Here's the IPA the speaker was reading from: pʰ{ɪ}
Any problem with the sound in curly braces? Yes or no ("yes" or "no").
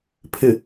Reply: no